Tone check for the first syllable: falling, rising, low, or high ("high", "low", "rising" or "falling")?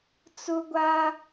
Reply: high